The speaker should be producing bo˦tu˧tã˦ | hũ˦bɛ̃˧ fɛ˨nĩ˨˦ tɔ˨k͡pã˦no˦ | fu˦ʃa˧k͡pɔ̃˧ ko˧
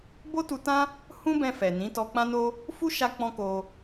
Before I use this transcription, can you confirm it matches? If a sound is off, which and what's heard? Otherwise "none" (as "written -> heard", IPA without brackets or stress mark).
ɔ˨ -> ɔ˧